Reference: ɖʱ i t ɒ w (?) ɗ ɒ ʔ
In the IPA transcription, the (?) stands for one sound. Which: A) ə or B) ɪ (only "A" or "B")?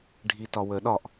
A